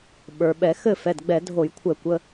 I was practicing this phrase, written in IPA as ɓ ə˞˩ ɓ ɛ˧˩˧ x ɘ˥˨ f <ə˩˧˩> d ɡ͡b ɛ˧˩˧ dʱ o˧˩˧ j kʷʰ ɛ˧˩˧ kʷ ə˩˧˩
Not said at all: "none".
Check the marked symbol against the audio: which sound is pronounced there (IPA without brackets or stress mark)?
ɛ˩˧˩